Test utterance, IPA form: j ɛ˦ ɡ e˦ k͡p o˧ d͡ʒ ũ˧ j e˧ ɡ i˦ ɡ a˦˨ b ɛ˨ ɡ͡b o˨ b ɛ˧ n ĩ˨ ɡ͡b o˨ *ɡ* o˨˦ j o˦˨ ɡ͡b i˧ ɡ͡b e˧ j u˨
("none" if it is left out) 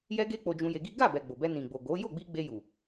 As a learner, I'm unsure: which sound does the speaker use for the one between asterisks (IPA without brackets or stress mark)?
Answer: ɡ